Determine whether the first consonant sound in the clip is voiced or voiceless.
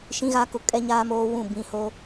voiceless